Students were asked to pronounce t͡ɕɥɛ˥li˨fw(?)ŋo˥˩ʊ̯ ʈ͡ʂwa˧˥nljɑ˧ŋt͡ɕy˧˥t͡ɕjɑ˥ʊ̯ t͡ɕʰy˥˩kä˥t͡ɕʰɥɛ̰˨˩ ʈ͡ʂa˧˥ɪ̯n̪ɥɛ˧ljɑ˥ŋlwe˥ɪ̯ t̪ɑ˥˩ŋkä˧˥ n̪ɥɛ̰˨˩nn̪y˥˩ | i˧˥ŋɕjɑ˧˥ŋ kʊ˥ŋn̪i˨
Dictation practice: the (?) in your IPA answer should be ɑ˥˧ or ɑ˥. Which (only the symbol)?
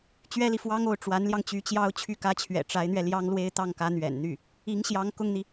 ɑ˥